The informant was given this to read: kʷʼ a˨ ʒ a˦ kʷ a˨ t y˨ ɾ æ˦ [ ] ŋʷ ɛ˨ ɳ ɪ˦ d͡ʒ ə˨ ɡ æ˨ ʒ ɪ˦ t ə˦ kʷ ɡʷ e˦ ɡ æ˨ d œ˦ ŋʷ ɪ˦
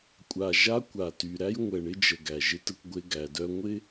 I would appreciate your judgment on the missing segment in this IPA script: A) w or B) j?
B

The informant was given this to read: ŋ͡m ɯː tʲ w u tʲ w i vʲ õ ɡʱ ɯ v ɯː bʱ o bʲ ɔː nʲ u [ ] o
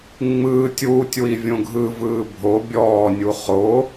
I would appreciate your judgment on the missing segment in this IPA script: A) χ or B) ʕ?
A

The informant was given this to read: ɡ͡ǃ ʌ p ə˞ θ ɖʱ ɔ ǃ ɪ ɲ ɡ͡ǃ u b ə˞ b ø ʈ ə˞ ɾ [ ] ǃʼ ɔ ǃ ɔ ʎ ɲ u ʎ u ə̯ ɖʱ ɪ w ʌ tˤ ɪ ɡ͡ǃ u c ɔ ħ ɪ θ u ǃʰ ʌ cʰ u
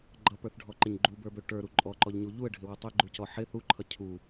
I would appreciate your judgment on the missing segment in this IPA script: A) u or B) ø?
A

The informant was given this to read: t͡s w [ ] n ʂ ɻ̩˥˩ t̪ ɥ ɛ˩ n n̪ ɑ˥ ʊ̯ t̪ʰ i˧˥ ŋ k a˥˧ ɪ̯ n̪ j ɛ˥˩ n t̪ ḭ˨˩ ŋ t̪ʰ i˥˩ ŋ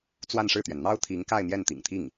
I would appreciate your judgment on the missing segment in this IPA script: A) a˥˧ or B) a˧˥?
A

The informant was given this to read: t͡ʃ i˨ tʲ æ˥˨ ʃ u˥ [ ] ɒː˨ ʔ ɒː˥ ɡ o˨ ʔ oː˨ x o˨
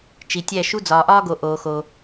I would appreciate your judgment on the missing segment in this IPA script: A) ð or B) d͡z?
B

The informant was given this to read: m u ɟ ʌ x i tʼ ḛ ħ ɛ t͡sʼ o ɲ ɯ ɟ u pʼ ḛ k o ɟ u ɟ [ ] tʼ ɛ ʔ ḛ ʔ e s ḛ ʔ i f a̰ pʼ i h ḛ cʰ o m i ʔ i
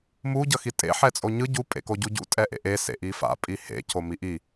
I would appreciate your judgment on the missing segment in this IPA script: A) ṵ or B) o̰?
A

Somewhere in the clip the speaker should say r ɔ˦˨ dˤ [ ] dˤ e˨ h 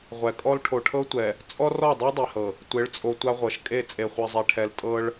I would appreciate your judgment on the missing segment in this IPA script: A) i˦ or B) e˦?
A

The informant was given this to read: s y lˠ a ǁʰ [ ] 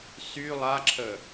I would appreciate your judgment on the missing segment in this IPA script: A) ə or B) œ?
A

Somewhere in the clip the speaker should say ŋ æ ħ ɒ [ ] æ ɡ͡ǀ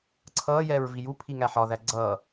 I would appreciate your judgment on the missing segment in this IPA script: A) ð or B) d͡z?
A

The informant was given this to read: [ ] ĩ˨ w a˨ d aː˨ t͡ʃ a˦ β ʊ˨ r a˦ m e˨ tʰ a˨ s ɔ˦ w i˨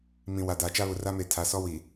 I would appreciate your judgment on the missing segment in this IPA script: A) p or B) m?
B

